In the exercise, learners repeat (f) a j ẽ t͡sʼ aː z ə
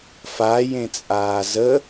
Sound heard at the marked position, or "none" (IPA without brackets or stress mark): f